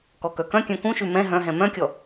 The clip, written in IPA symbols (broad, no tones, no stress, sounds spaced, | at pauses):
k ɔ k œ k œ̃ kʲ œ̃ k ũ ʃ ʉ m ɛ̃ ɦ œ̃ ɦ ɛ̃ m œ̃ kʲ ɔ